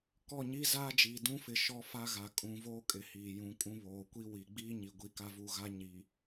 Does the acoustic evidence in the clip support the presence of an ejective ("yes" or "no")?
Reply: yes